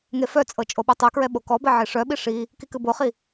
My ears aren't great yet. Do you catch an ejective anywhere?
yes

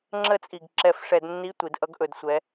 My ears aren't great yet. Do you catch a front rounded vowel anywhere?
no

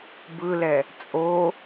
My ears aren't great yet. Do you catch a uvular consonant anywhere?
no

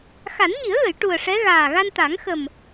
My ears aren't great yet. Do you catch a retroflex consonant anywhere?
yes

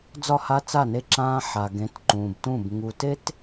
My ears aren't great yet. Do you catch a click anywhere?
yes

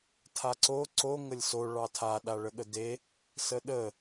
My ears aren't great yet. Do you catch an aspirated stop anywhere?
yes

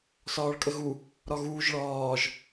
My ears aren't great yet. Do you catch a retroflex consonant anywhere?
yes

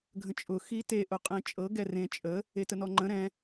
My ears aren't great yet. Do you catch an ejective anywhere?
yes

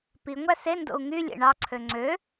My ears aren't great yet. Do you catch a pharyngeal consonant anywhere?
no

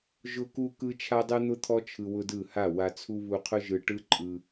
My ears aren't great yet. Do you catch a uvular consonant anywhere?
yes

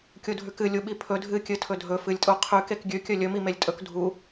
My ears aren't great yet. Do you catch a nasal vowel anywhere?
no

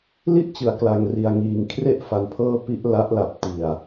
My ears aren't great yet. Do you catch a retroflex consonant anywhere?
no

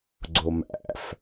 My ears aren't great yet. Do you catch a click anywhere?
yes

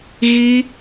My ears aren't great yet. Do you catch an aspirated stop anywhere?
no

